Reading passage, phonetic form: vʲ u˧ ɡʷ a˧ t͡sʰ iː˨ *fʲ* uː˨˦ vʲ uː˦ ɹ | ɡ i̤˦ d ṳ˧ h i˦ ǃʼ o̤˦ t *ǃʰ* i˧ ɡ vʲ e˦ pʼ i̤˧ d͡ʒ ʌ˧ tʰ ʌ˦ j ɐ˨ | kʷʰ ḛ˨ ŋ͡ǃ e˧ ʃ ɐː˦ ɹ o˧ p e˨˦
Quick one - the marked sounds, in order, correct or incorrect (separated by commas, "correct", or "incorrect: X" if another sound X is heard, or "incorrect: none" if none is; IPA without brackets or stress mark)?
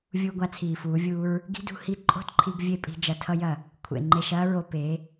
incorrect: f, correct